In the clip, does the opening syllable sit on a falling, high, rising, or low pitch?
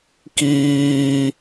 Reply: high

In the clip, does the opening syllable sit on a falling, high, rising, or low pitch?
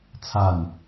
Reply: falling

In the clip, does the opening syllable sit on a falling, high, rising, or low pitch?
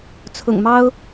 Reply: low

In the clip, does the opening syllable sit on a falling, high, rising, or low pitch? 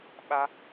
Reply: high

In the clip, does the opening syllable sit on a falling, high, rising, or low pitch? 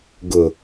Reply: low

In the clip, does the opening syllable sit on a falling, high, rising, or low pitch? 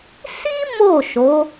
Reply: high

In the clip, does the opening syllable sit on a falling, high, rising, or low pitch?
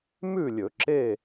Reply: falling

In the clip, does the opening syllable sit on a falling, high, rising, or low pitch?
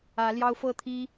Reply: rising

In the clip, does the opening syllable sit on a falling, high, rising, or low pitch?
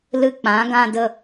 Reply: high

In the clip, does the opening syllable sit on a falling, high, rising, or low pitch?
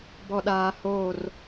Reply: low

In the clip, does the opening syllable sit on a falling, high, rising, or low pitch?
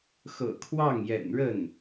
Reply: low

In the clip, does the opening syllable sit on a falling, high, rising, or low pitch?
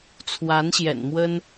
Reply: rising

